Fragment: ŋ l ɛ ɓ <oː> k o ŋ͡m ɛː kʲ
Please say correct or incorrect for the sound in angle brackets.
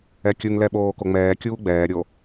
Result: correct